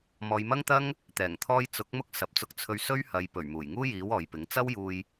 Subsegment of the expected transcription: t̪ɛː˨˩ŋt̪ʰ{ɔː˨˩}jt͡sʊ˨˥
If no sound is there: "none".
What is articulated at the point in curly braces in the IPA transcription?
ɔː˧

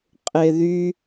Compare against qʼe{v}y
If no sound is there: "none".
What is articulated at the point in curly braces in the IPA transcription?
ð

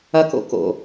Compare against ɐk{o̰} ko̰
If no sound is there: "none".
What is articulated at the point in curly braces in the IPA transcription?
o̰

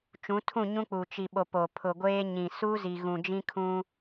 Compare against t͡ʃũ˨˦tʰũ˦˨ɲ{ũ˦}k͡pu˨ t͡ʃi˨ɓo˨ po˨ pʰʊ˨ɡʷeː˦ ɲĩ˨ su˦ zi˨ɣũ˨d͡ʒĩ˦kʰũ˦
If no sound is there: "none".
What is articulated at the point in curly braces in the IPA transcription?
ũ˦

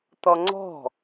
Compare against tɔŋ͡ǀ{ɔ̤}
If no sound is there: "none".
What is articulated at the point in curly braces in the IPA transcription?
ɔ̤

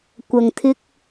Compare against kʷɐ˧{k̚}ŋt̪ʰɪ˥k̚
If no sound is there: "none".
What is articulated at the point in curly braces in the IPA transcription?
none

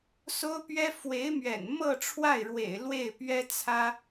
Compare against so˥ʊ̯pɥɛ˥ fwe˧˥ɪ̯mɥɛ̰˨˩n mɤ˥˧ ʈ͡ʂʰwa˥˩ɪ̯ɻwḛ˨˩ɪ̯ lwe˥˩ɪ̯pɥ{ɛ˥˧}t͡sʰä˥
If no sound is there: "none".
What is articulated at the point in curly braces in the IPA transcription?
ɛ˥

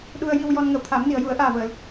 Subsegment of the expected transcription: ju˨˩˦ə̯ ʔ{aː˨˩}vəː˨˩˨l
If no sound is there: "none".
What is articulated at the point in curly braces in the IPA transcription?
aː˨˩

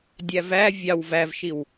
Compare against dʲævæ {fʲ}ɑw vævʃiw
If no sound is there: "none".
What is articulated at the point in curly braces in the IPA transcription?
vʲ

